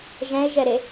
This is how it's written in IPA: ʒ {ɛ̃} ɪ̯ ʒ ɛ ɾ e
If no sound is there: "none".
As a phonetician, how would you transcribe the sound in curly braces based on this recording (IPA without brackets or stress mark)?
ɛ̃